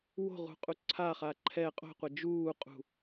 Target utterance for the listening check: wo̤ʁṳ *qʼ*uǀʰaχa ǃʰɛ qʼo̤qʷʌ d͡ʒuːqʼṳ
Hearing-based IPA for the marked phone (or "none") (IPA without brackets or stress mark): qʼ